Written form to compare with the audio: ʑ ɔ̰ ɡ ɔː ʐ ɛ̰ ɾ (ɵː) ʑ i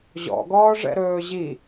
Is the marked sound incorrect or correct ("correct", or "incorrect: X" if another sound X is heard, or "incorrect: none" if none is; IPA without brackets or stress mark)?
correct